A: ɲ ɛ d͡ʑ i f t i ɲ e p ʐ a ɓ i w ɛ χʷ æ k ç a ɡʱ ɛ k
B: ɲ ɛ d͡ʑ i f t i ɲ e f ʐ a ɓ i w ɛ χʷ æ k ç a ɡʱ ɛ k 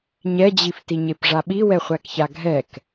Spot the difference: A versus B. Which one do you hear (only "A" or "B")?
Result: A